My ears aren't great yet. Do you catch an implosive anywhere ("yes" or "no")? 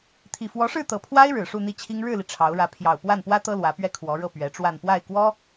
no